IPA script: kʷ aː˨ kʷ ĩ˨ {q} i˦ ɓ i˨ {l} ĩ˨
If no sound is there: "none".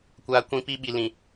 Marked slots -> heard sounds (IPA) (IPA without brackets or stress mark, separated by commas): p, l